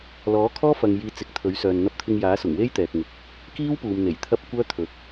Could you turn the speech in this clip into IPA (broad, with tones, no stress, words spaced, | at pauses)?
lɔː˨˥kʰɔː˥ fɐ˧ŋ jiː˧ t͡sɪ˨˥k̚t̪ʰɵ˨˥ɥ sœː˨n n̪ɐ˧p̚t̪ʰɪ˧ŋjaː˨˥sʊ˨˩ŋ we˥jt̪ɛː˨k̚ŋɪ˨k̚ | kiː˥wpuː˨mn̪e˨˩j t̪ʰɐ˥p̚kʷœː˥ t̪ʰɵ˨t̚